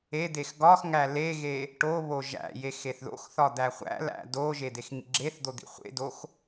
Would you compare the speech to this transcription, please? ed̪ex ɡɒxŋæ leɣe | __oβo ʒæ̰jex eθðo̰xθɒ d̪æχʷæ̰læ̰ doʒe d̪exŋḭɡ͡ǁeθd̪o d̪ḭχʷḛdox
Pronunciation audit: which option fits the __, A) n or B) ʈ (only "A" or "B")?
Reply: B